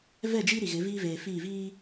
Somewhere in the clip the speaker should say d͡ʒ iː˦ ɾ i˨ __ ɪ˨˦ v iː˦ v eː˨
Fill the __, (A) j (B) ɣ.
B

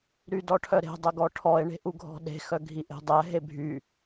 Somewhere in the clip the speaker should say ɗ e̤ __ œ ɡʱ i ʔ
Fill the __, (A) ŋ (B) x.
B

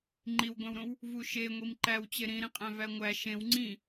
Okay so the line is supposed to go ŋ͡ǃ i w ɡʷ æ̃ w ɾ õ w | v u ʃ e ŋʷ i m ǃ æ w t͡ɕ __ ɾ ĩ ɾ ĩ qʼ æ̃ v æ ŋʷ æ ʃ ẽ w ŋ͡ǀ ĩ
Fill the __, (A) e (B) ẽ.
A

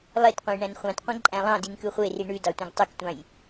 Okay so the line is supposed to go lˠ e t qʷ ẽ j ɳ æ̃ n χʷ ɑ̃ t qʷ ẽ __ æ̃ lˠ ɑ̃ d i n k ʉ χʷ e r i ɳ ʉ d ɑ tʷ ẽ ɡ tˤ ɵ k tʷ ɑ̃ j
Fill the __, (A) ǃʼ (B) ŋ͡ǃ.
A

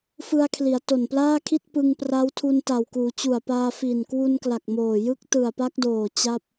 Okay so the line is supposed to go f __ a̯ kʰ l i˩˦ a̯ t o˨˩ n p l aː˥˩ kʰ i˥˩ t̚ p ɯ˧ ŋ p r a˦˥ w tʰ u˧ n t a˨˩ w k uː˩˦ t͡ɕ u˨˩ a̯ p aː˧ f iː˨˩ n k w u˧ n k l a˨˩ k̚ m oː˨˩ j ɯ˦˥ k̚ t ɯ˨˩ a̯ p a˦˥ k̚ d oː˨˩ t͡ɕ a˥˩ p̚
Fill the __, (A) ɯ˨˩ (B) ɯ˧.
B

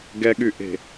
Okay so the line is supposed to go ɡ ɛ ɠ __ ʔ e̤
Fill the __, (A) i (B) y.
B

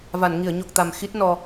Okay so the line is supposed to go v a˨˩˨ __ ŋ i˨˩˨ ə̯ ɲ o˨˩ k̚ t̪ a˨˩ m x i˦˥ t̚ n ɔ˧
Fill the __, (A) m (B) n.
B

